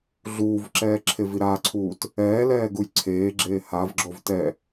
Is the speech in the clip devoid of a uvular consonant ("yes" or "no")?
yes